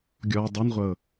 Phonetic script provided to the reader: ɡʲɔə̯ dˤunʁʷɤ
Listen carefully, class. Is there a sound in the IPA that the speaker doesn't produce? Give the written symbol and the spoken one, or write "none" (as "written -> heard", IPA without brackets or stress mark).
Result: none